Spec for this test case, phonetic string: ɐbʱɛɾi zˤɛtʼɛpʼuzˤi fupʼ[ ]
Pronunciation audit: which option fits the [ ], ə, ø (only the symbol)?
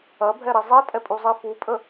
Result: ə